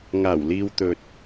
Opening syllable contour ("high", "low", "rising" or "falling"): low